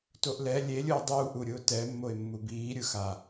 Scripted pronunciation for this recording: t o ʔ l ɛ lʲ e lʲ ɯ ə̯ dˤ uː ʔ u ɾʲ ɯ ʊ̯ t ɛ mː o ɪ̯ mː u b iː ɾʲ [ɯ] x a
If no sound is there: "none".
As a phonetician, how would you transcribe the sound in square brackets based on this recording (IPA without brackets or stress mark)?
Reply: ɯ